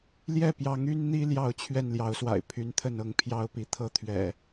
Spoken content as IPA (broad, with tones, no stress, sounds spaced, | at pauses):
l j ɛ˥˨ p j ɑ˨˦ ŋ y˦ n n̪ i˦ l j ɑ˥˨ ʊ̯ t͡ɕʰ ɥ ɛ˥˨ n l j ɑ˨˦ ʊ̯ s w a̰˨˩ ɪ̯ pʰ y˨˦ n t̪ʰ ə˥˨ n ɤ˥˨ ŋ pʰ j ɑ˦ ʊ̯ p i˨˦ t̪ʰ ɤ˦ t̪ʰ ɥ ɛ̰˨˩